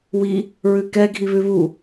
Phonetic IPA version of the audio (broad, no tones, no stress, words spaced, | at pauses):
wi | ɹʉkɛ ɡʱiβʉβu